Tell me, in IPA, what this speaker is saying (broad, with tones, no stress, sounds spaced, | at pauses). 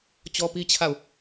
t͡ɕ ɔ˦ p i˦ t͡ɕʰ a˦˨ ʊ̯